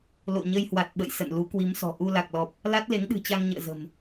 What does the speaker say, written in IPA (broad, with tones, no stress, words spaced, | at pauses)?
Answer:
lo̰˧˨ɲə˧jhwa˨˩t̚ ɓə̰˧˨j sə̰˧˨nlu˨˦kwi˨˦msɔ̤˨˩ ʔu˧la˨˩k̚lɔ˨˩p̚ | la˦˥t̚le˨˦ŋɗɨ̤˨˩t͡ɕa˧ŋ ɲə̰ː˧˨zə̤˨˩m